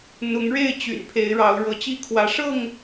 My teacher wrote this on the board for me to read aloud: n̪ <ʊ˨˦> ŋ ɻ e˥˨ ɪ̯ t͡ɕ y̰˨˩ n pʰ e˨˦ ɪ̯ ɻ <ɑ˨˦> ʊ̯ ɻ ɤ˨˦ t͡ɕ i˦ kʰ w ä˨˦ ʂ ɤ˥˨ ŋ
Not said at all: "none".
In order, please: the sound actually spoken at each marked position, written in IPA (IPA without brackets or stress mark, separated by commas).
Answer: ʊ˨˦, ɑ˨˦